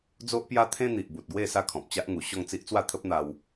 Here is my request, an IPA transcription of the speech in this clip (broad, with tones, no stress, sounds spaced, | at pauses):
d͡z o˦ ʔ p j a˦ t̪ʰ ẽ˦ n̪ i˨ ʔ b u˨ t̚ ɡ w e˥˧ s a˥˧ kʰ ɔ̃˨ p̚ t͡ɕ a˦ ʔ ŋ u˨˩ ɕ ɔ˥˧ ŋ t͡s i˦ ʔ t͡s w a˥˧ t̪ʰ ə˦ p̚ n̪ a˧ w